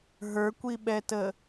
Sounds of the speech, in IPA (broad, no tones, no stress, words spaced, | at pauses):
ɦə˞kʷiɓɛtə